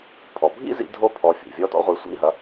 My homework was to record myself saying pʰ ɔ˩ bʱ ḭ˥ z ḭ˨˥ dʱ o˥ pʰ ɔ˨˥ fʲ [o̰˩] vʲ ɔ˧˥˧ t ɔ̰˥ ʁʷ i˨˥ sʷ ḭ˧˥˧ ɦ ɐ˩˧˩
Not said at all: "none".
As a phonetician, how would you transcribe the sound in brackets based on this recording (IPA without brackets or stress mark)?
o̰˩